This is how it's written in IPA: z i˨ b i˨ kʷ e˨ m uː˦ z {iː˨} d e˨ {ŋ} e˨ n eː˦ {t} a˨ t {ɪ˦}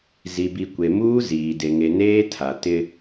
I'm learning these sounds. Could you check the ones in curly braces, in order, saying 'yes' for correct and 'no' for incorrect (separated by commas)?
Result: yes, yes, no, yes